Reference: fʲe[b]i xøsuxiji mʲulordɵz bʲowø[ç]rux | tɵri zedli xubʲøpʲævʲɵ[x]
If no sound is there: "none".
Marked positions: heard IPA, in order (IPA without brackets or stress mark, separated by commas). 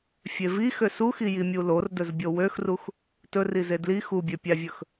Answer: v, x, x